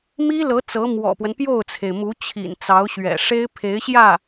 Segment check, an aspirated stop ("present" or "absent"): present